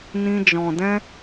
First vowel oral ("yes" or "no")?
no